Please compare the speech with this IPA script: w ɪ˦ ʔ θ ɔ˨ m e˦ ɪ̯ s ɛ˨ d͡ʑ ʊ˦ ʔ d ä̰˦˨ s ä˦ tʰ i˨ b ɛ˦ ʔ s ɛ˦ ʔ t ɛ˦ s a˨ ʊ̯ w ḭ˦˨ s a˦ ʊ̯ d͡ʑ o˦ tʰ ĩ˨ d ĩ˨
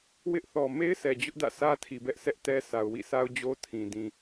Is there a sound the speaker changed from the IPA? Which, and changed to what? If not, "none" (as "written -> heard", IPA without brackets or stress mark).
none